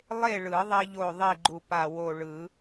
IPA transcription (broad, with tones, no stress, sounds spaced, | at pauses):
lˠ e˥˨ ɭ ɯ˨˩˦ ðˤ i˧ ʎ o˧˩ ðˤ i˥˨ ɡ͡ǃ u˧˩ p a˧˩ w o˧˩ ɭ ɯ˨˩˦